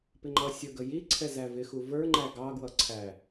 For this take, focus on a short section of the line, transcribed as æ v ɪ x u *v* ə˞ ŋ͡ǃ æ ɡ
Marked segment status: correct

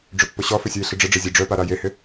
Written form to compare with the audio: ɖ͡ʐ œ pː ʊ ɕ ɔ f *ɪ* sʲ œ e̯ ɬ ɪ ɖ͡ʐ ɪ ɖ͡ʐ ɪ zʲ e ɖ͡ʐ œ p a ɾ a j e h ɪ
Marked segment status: correct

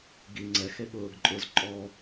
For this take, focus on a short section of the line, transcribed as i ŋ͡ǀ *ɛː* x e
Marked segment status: incorrect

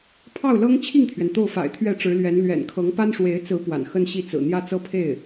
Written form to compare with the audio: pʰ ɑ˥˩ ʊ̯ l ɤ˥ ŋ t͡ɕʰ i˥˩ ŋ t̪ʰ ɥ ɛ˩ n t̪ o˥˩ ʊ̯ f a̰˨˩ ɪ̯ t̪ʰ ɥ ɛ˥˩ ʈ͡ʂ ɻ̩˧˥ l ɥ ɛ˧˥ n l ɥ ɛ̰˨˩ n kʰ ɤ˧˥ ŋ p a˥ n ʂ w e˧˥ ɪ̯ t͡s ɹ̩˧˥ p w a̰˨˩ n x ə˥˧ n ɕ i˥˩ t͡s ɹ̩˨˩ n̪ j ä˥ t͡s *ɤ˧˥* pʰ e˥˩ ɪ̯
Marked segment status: incorrect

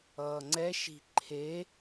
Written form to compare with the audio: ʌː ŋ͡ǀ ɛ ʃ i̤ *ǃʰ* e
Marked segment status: correct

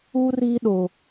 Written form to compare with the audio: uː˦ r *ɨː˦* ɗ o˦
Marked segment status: incorrect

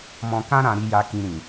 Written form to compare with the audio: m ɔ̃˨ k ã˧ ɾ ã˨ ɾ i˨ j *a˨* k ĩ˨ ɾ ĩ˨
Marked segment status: correct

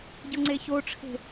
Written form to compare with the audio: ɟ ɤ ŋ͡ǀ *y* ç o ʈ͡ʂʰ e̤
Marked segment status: incorrect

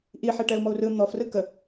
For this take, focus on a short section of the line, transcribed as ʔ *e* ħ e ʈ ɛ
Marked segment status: incorrect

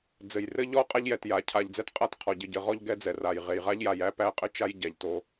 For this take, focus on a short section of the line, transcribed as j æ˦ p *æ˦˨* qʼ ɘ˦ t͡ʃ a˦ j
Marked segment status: correct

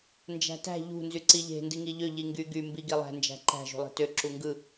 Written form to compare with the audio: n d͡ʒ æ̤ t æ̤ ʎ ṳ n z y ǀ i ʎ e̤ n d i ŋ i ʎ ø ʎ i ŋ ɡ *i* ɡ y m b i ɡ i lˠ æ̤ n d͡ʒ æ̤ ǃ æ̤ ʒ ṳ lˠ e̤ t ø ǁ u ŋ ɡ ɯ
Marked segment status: incorrect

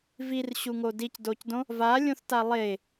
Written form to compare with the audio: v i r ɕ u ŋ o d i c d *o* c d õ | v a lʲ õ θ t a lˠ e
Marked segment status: correct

